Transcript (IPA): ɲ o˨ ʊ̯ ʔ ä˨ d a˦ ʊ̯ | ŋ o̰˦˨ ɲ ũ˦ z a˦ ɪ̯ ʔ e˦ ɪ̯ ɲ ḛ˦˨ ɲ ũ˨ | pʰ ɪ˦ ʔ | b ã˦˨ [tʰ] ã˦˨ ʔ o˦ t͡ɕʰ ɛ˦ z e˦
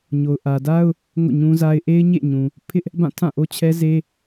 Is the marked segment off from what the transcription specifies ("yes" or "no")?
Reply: no